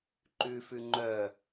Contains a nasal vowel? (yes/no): no